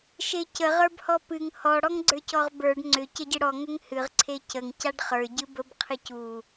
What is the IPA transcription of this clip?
ʃecə ʁə˞bhɔpɨŋ hɔ ɽɔŋɡ͡ǀə˞cɔʁbə˞ɖ ŋ͡ǀʏ cəɟɨɽɔ ŋʏŋhɨʁ ǀʰecəŋ caɖχə˞ ɟɨbəb qʰɨcu

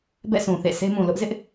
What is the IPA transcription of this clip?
bɛ̰˦˨sʰũ˨ θḛ˦˨ sʰe˦mũ˨ lʊ˦ʔzɪ˦ʔ

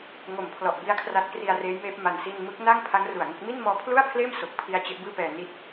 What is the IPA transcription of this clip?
ŋo˨˩mpʰlɔ˨˩ʔbi˦˥a̯ kʰra˦˥t̚kri˧a̯reː˦˥jmeː˦˥p̚ ma˧nsi˥˩n mɯ˦˥k̚ na˥˩ŋpʰa˦˥ŋ ru˨˩a̯ŋo˥˩k̚ mi˥˩nmɔː˦˥pʰlu˥˩a̯pʰleː˥˩m so˨˩k̚pʰi˦˥a̯ t͡ɕe˦˥ʔbɯː˥˩pɛː˧ ni˥˩t̚

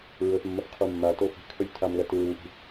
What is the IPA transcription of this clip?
ɹɵθmːɐf qʰumːato fi̤kʰɵlʲ tʰamlɐ tɨɹuʔi̤

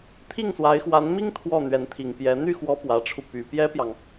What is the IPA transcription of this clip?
t̪ʰi˥˩ŋswa˧˥ɪ̯xwa˧˥nmi˥ŋ t̪ʰwɔ˥˩n̪ɥɛ˧˥nt̪ʰi˨˩ŋpjɛ˧˥ n̪y˥˩xwɔ˧˥ pwä˨˩ʈ͡ʂʰu˦ py˨˩pjɛ˥pjɑ˨ŋ

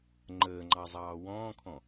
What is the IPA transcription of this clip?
ŋ͡ǃəːŋ͡ǃɑzˤɑː wɔ̃ːkʰɔ̃

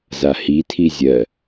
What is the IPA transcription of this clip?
zahitʰi zʲɜ

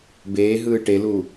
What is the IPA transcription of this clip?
beːɦɯː ʈelu

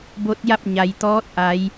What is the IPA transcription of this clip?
bo˧˥t̚ja˥˨p̚ ɲa˩jt̪ɔː˧˥t̚ʔa˩˧j

